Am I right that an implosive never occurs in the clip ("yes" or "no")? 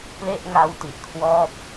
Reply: yes